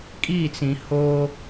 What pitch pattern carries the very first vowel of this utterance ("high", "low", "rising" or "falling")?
falling